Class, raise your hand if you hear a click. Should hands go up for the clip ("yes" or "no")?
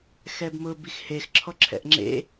yes